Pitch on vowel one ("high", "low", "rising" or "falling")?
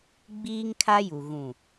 high